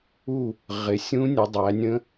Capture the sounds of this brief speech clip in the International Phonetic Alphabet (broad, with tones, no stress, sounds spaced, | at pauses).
u˥˨ | ʁ ɪ˩˧ sʲ ũ˦˥ nʲ ʊ˩˧ dˤ æ˩˧ nʲ ə̃˦˥